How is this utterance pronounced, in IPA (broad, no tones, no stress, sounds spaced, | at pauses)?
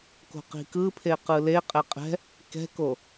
k o̤ q i̤ k ɯ pʰ e q ɯ l e qʼ ɛ qʼ ɛ̤ | k ɛ̤ k o